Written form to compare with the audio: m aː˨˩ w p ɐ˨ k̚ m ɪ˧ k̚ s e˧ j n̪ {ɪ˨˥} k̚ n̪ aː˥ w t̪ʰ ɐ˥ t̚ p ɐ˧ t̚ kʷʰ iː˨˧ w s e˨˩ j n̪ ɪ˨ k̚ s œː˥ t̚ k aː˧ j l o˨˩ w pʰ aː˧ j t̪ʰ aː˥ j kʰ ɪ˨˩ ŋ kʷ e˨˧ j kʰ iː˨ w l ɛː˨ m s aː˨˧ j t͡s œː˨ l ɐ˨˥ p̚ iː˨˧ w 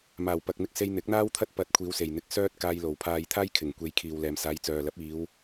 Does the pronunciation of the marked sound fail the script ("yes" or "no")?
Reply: no